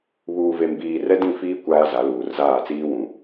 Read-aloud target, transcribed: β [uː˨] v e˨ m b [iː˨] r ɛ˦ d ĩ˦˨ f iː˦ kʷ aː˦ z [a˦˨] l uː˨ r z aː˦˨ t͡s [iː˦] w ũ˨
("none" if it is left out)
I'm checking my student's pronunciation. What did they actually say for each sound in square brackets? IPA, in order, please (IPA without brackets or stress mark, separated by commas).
uː˨, iː˨, a˨˦, iː˦